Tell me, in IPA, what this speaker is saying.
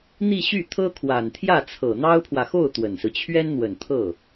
n̪i˥˧ɕy˥˩t̪ʰɤ˥kʰwa˨˩n t̪ʰjä˥˩t͡sʰɤ˨˩n̪ɑ˥ʊ̯pʰwä˨ xo˥˩ʊ̯ t̪wə˨˩nsɹ̩˦ t͡ɕʰɥɛ˥nn̪wə˨˩nt̪ʰɤ˥˩

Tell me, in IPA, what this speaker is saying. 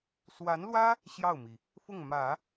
swa˧˥nlwä˥ | ɕjɑ˥˩ʊ̯mi˩ | fʊ˥˩ŋmä˨˩˦

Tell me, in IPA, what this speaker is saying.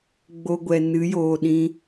ɡ͡bo˧ɡʷɛ˨ nɨ˨˦joː˨ɗĩ˧

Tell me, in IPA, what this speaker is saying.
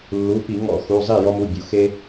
lːu˩˧˩pi˧˩˧ŋɔ̰˧˩˧ xu˩˧˩zˤi˥˩ jɔ˦mu˩˧˩bʲṵ˩˧˩ xe˦

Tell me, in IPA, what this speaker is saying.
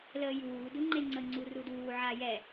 ləːjuː duŋ͡ǃeŋ͡ǀə ŋ͡ǀuruduː ʕajɛ

